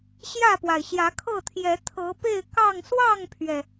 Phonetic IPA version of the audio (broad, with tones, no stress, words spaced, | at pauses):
ɕjä˥˨pwa˩ɪ̯ ɕjä˨˦kʰɤ˥˨t̪ʰjɛ˨˦ t̪ʰɤ˨˦ pe˥˨ɪ̯ kɑ˥˨ŋ swɑ˥˨ŋpʰɥɛ˩